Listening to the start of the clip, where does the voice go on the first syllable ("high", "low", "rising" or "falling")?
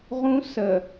high